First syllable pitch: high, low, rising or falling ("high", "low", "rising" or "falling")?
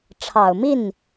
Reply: low